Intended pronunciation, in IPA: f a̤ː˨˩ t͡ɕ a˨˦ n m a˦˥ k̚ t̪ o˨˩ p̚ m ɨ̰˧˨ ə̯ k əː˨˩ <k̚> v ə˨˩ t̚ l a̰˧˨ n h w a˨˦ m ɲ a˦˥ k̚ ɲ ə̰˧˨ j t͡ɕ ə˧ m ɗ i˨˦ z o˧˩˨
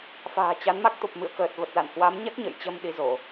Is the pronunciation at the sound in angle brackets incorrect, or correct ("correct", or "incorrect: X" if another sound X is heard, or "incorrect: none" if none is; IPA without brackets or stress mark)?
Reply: incorrect: t̚